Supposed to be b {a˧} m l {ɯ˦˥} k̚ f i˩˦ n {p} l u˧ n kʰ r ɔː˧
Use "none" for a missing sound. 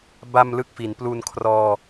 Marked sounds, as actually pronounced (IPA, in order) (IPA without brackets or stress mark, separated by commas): a˧, ɯ˦˥, p